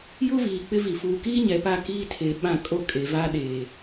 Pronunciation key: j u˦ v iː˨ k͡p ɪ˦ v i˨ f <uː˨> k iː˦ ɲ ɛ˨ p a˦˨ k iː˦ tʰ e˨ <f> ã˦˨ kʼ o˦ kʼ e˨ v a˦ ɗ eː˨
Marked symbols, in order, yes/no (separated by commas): yes, no